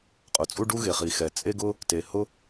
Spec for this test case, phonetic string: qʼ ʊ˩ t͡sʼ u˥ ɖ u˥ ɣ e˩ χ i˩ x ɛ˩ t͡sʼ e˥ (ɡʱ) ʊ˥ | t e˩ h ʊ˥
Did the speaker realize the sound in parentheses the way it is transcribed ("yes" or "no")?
no